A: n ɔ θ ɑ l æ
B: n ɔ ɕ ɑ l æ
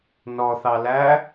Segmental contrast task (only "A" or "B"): A